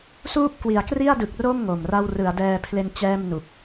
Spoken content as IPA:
s uː˥˩ p̚ k w i˩˦ a̯ k r i˥˩ a̯ d ɯ˨˩ k̚ r o˥˩ m ŋ o˨˩ m r a˥˩ w r ɯ˩˦ a̯ d ɛː˧ pʰ l e˧ n t͡ɕ ɛː˥˩ m n u˨˩ k̚

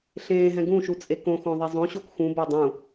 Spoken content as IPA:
ɬ ẽː ɦ ɛ̃ ɡ ũ ʃ u t͡sʼ e k õ x õ ðˤ i zˤ õ ɕ o k x ũ b a dˤ ũ

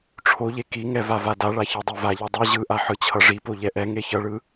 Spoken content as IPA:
ʈ͡ʂʰ o ʎ e k i ŋ ɛ v a v a d a ɭ a ç ɛ dˤ e v a ʎ ɛ dˤ i ʑ ɯ ʔ a ħ ɯ t͡ɕʰ ʌ ʐ i p o ʎ ɛ ʔ ɛ ŋ e ç ʌ ɭ ɯ

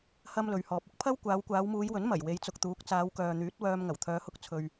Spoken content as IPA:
h ɐ˥ m l ɵ˨˧ ɥ h ɔː˨ p̚ ʊ˥ k̚ pʰ ɐ˥ w kʷ aː˨˧ w kʷ aː˨˧ w m uː˨˧ j w ɵ˨˥ n m ɐ˨˩ j w e˨˧ j t͡s ʊ˨ k̚ t̪ uː˨˥ k̚ t͡s aː˨˧ w k œː˨ n̪ yː˨˥ t̚ w œː˧ m ŋ ɐ˨˩ w t̪ʰ œː˨˧ h ʊ˧ k̚ t͡sʰ ɵ˨ ɥ

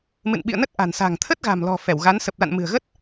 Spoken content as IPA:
m ɨ̰˧˨ n ɓ ḭ˧˨ ə̯ n ə˦˥ t̚ ʔ a̤˨˩ n s a̤˨˩ ŋ t̪ʰ ə˦˥ t̚ ɣ a̤˨˩ m l ɔ̤˨˩ f ɛ˧˩ w ɣ a˨˦ n s ə˨˩ p̚ l a̰˧˨ n m ɨ̤˨˩ ə̯ ɣ ə˦˥ t̚

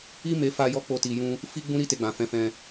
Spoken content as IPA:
i˦ m e˧ f a˦ j ɔ˦ k͡p o˦ t i˧ j ũ˦ | f i˦ ɡ͡b ũ˦ ɾ i˦ t e˧ ɡ͡b ã˨ f ɛ̃˨˦ f ɛ̃˧

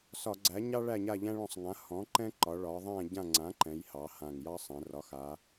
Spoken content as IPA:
s ɒ˧˩˧ ɡ͡ǀ æ˩˥ ɲ ɑ˦ ɭ æ˦˨ ɲ a˦˨ ʎ æ̃˦ ɭ ɔ̃˦˨ sˤ ŋ ã˩˥ h ɔ̃˩˥ ǃ ɛ̃˦ ǃ ɒ˩˧ ɭ ɒ˩˧ ðˤ æ̃˦˨ ɟ ã˦˨ ŋ͡ǀ ã˩˥ ǃ ɛ̃˩˧ j h ɑ˩˧ h ã˨˩ ŋ j ɑ˦ sˤ ɛ̃˩˧ r ɒ˩˥ x a˩˧

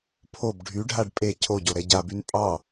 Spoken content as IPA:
pʰ o b ɖʱ y ɖʱ a ɖ pʼ e cʰ o ɟ o ɾ ɛ ɟ a b y n pʼ ɑ

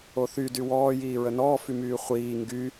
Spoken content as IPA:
o θ y d y w ɔː j iː ɹ ə n ɔː f y m yː χʷ iː ŋ ɡ y

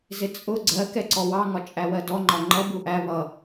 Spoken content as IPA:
z ɪ t͡sʼ ʊ ɡ͡ǀ ɜ k ɛ ǀ ɔ w ɑ ŋ ɒ t͡ʃʼ æ w ɜ d ɔ ŋ͡ǃ ɒ ŋ͡ǃ ʌ b u ʔ æ β ʌ

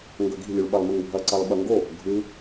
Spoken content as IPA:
ŋ ɡ ɵ ɡ i̤ lʲ u ɭ ɓ ɐ lˠ m ɨ ŋ bʱ ɐ ǀ ɐ lˠ ɓ ɐ ŋ ɡ o | ɡʱ ʉ

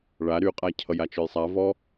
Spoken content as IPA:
ɭ a ɾ y qʼ a cʰ ʌ j a t͡ʃ œ j sˤ a v ɔ

